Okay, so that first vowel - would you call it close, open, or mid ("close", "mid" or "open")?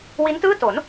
close